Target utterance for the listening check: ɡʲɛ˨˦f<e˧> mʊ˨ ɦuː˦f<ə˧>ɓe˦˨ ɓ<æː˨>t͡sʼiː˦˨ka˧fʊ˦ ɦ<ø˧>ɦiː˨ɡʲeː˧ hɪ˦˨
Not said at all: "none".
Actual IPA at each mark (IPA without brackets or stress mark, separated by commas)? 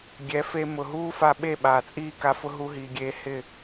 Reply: e˧, a˧, aː˨, u˧